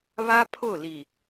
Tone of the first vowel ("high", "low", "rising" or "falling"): high